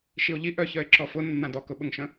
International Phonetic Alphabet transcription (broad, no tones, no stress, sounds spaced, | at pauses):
ʃ i o̯ ʎ i ʔ œ ç œ e̯ ǁ ɔ f ʊ nː ã d ɔ k ʊ ɓ ʊ ŋ ʃ ə̃